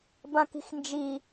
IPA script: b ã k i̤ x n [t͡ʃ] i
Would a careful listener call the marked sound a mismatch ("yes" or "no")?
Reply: yes